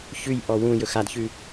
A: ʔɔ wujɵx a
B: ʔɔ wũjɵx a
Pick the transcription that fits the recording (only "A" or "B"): B